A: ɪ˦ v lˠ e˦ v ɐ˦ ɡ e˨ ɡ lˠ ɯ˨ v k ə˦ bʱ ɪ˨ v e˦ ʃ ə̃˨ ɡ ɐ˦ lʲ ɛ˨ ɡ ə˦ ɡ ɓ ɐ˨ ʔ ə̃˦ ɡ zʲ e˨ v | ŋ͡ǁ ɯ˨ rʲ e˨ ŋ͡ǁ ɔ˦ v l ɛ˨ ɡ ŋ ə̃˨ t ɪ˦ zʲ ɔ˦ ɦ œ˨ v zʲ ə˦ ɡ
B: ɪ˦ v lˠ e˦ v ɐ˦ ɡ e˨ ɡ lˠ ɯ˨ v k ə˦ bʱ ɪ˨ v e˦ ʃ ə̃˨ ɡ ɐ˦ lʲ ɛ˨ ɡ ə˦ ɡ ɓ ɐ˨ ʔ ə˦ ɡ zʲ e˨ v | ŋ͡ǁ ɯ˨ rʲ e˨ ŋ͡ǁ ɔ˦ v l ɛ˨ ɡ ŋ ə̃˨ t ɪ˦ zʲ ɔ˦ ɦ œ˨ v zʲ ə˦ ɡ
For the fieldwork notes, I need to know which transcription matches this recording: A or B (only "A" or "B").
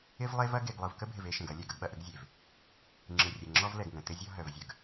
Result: B